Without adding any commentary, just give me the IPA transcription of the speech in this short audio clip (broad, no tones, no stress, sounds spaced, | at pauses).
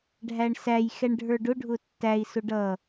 ɖʱ æ ɳ s æ j x ɛ ɳ ɖʱ ə˞ ɖ ʊ ɖʱ ʊ tː æ i̯ s ʊ ɖ ʌ